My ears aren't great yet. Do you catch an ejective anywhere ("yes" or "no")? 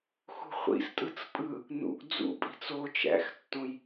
yes